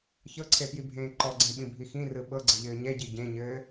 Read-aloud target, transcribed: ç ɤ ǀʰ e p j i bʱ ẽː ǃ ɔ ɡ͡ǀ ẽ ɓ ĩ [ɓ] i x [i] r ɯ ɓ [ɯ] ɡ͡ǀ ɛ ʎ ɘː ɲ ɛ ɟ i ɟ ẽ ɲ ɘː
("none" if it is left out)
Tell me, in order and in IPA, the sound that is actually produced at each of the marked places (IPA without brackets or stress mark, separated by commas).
bʱ, ĩ, ɤ